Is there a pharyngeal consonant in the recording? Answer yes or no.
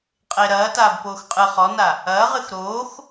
no